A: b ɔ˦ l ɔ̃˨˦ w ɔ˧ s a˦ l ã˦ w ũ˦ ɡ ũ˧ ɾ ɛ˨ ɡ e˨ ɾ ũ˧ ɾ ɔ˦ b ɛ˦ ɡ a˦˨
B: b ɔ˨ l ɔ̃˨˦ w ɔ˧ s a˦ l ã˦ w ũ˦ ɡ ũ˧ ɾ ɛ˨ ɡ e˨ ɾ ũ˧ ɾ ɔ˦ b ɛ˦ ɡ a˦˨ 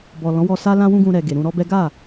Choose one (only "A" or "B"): B